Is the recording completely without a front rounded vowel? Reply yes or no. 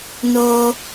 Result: yes